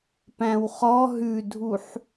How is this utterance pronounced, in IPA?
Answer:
p æ̃ w χ ɔ ɦ ʉ dʱ u ħ

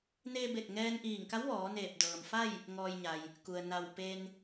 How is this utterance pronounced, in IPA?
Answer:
n eː˧ b e˧˩ t̚ ŋ ɛː˧ n ʔ iː˧˩ ŋ k a˧˥ w ʋ ɔː˩˧ n eː˧˩ p̚ d ɤː˩ m f a˥˨ j | ŋ ɔː˧ j ɲ a˩ j | k u˩ ə̯ n a˧˩ w p e˧ n

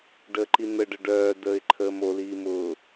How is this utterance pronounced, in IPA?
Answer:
ɖ əː ǃ i n̪ ə ɖ ə ɖ œː d əː ɪ̯ ǃʰ əː m o l iː m ʊ

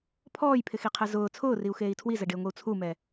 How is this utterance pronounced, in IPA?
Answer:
pʰ ɔː j pʰ ɪ x i qʰ ɛ z ʊː t͡sʰ ʊː r i u̯ x eː i̯ tʰ w i z ɛ ɖ ɪː ŋʷ i u̯ t͡sʰ u m ɛ

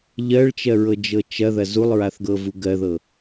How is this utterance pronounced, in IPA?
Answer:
ʎ ɜ ɭ t͡ʃ ɜ ɹ ɤ d͡ʒ ɤ t͡ʃ ɐ ð ɐ z u lˠ ɹ a θ ɡ ɤ v u ɡ ɜ ð ɤ

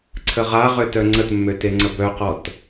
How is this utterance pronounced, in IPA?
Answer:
ǀʰ ə ʁ a ʁ ø t œ ŋ͡ǀ ə t mː ø t e ŋ͡ǀ ə b œ q ɔ t

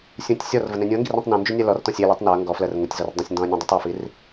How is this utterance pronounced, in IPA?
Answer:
sʲ ũ tʲ sʲ ɔ r v ə n ẽ nʲ ũ ɐ̯ ŋ ɡ i r ĩ tˤ n ũ n d͡ʒ y nʲ ɜ l ɔ r t ɔ̃ sʲ e l i tˤ n ɔ ɐ̯ ŋ ɡ ɔ f l ɜ r ŋ u tʲ z ɔ r dˤ ə̃ sʲ n d ɔ̃ ɐ̯ nʲ ũ dˤ i tˤ ɜ f i r

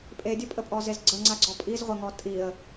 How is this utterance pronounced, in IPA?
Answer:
pʼ e dʲ ɵ pʼ ə pʼ ɔ z e z ɡ͡ǀ ə ŋ͡ǀ a ɡ͡ǀ ɔ pʼ i z ʁʷ ə ŋ ɔ tʼ i ə̯

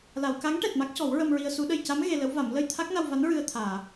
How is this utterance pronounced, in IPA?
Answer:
l a˨˩˨ w k a˧˥ ŋ ʈ ɛ˨˩ t̚ m a˦˥ k̚ c ɔ˨˩˦ w ɹ ə˧ m ɹ i˧ ə̯ s u˨˩˦ ɗ ə˨˩˨ j c a˧˥ m ɣ e˧ l ə˧˥ w v a˨˩˦ m l ə˧ j t̪ʰ a˦˥ k̚ n a˧ w v a˧˥ n ɹ ɨ˧ ə̯ t̪ʰ aː˨˩˨

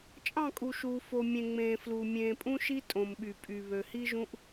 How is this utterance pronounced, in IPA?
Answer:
t͡ʃʼ ɑ̃˦˨ kʼ u˨ ʃ uː˨ f o˨ mʲ ẽ˨ ŋ͡m ẽː˨ f l u˨ mʲ ẽː˨ pʼ ũ˦ ʃ i˦ tʼ õ˨ m ɓ y˨ pʼ y˨ β ø˨ h i˦ ʒ ũ˦ ʔ

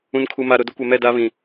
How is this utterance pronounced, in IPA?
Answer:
ũ˨ n kʰ u˨ m a˨ ɾ ʊ˨ d ʊ˦ kʷ ɛ˨ m ɛ˦˨ d a˦ β ĩ˨

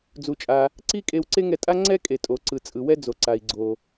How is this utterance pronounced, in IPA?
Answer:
d͡z u˩ t͡ʃʼ a˩ | ǀ i˥ kʼ e˧ w ǀ e˥ ŋ ɛ˧ tʼ a˥ ŋ͡ǀ ɛ˥ kʼ e˩ tʼ o˩ ǀ ɯ˩ t͡sʼ ɯ˩ w ɛ˥ d͡z o˩ ǀ a˩ i̯ ɡ͡ǀ o˩

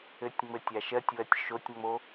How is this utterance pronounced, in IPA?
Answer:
ɘ tʲ ŋ͡m ɘ tʲ a ʃ ɜ tʲ w ɜ tʲ ʃ o tʲ ŋ͡m o

